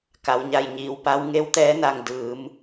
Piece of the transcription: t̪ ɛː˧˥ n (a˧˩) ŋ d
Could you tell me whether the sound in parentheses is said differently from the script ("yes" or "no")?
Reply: no